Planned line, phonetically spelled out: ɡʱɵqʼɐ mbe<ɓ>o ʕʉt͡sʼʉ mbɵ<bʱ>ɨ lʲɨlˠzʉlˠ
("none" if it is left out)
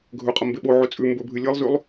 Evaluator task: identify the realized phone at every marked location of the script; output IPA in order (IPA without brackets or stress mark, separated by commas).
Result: ɓ, bʱ